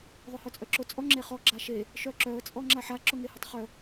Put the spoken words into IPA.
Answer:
ðˤ ʊ h œ t͡sʼ œ ǁ ʊ t͡sʼ ɔ ŋ͡ǁ e χ ɔ ɡ͡ǁ a ʃ e | ʃ œ ǁ œ ə̯ t͡sʼ ɔ ŋ͡ǁ a ħ a ǁ ʊ ŋ e h ʊ tˤ χ œ

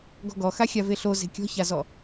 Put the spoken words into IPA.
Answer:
ɡ ɔ̤ ɡ ɔ x a xʲ a v e ɬ o z e̤ kʲ ɔ̤ ç a z ɔ

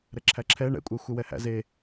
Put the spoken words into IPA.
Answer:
ɾ ɛ ǁʰ æ ǁʰ ɛ ɳ ɛ̰ kʷʼ æ xʷ ɛ w ɛ h æ̰ z e

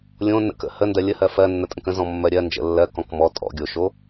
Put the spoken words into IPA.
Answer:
lʲ õ n ə̰ k ə̰ h ə n d ɜ lʲ ə h ɜ f ɜ nː ə tʼ ə̃ k ə̃ z ɔ̃ mː ɜ ɾʲ ɜ n d͡ʒ ə̰ lː ɜ k ɔ̃ k m ɔ tʼ ɔ̰ ɡʲ o ʃ o

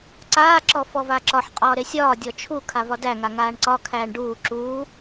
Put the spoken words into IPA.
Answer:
ǀ aː ǁ ɔ f ɔ v a ǁ ɒ ħ qʼ ɒː ɾ e sʲ ɒː dʲ ɔ t͡ʃʰ u kʰ a v ɒ d æ ŋ a ŋ aː ɳ ǀ ɒ kʰ æː ɳ ɖ uː ǁ uː

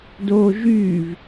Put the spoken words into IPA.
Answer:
d oː ʒ yː v

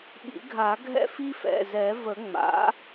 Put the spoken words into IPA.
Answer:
ɓ ḭ˨˩˦ ɡʱ a˨˩˦ ɡʱ ɛ̰˦ f i˦ f ɛ̰˩˧˩ z ɛ˨˩˦ v ə˨˩˦ ŋ͡m a̰˩˥

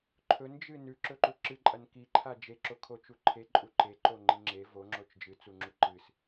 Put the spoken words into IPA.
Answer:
ǃʰ ɵ n d͡ʒ ɨ n ʉ ǁ ɵ ǃ u ǁ ɨ ǃʼ ɐ n k i ǃʰ a d͡ʒ e ǁ o kʰ o t͡ʃ u ǃʰ e ǃʼ u ǃ e ǃ o ŋ͡ǃ i ŋ͡ǁ e v o ŋ͡ǁ o t͡ʃ d͡ʒ ɨ t͡s u ŋ͡ǁ u ǃ ɨ s

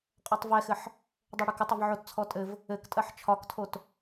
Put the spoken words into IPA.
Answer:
qʼ ɔ tˤ v ɛ x ɘ ħ | dˤ o ɽ ɪ k ɪ tˤ ɪ v ʕ o t t͡sʰ ɔ tʼ ɘ v | ɘ k tʼ ɜ ħ t͡ʃʰ ɒ k tʰ o t

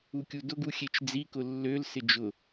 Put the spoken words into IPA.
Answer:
u kʲ u d ʊ ɡ u xʲ e t͡ʃ d͡z i k ʊ lː ø l s ɪ d͡ʒ ʊ

